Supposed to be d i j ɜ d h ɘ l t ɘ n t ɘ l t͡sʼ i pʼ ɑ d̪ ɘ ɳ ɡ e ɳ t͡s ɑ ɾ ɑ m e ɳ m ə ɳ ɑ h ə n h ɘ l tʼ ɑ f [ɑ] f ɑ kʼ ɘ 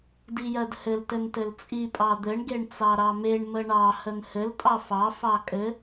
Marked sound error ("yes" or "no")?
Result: no